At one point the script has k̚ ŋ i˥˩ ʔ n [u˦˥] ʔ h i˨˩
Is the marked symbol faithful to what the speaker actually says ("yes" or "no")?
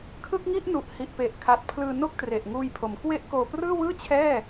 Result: no